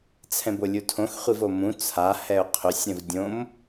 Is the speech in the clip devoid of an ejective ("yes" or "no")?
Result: yes